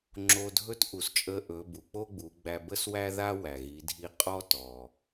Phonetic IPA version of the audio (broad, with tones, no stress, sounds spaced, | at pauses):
ŋ͡ǁ o˧ dʱ ɵ˥ t ʔ u˩˧ s t͡ʃʼ ə˧˥ ʔ ɵ˩˧ b u˩ k͡p o˥ ɡ͡b u˩˧ ɡ͡b æ˧ b ə˥ s w æ˥ ð a˥ w æ˩ ɣ i˩˧ dʱ i˧˥ qʼ ɔ˥ t ɔ˩